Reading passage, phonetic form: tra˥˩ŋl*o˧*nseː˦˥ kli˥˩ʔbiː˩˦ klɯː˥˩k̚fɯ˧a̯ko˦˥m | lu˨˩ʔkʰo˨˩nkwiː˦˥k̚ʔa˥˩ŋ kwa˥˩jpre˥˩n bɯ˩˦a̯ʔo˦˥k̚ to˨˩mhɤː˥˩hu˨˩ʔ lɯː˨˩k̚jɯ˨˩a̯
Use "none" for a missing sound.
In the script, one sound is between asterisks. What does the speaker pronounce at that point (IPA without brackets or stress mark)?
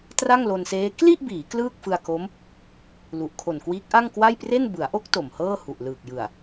o˧